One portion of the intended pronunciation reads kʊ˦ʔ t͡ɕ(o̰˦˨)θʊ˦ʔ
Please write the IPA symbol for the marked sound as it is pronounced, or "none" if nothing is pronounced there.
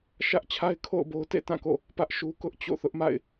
o̰˦˨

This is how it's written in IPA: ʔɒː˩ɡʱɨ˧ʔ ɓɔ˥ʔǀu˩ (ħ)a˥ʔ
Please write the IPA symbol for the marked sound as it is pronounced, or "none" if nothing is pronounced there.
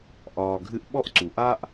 ʔ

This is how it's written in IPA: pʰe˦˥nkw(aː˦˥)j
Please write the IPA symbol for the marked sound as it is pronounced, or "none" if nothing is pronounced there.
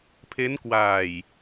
aː˨˩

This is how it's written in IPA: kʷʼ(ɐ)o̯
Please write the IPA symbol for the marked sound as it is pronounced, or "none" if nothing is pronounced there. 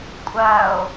ɐ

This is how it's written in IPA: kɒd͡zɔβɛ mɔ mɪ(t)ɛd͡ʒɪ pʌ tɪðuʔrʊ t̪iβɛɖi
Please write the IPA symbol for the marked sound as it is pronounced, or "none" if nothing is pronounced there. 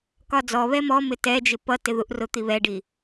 t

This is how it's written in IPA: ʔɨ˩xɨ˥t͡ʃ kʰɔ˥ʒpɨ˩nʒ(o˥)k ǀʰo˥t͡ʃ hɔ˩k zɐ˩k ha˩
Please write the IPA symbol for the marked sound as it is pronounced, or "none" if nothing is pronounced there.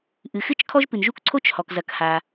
u˥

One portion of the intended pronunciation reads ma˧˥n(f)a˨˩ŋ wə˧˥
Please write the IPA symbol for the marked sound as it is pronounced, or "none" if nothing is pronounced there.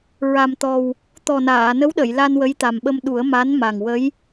m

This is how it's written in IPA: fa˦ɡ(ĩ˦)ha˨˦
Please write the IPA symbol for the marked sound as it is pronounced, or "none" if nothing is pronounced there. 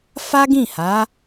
ĩ˦˨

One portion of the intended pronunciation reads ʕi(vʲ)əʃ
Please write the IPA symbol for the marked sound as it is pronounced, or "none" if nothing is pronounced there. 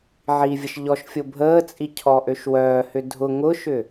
vʲ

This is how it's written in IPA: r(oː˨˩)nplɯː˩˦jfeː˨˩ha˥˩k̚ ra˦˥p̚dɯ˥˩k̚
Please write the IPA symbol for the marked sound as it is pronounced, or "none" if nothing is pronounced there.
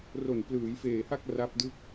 o˨˩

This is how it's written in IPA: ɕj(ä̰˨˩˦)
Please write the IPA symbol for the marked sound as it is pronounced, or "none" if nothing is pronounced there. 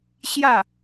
ä˥˩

